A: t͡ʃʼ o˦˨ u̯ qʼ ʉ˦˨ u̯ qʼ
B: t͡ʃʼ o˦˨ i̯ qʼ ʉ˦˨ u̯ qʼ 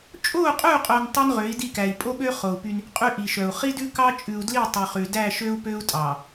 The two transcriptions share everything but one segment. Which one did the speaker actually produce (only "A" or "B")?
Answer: A